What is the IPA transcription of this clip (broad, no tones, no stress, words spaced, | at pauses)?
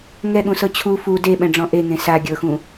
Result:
ŋɛɠũsɤ t͡ɕʰu fu deɓɛ̃ɖ͡ʐɔ̃ ʔeŋẽ sa ɡʲɤxũ